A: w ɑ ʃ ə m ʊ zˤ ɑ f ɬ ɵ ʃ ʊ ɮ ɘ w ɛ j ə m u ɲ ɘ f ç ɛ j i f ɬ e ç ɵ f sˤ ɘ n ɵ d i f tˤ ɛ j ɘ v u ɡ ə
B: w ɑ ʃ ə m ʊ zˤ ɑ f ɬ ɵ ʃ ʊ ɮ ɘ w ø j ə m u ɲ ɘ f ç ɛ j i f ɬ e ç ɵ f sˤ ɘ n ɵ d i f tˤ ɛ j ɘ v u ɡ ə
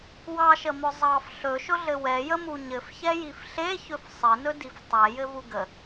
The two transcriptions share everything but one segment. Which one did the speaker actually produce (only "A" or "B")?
A